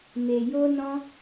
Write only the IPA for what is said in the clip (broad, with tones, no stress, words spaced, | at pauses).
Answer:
me˨ jo˧ nɔ̃˧